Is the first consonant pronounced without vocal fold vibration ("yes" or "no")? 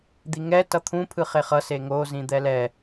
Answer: no